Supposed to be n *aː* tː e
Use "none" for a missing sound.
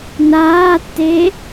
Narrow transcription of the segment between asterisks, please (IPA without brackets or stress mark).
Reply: aː